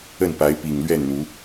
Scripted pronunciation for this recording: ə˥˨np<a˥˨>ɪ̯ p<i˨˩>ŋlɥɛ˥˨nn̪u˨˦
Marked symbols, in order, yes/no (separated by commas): no, yes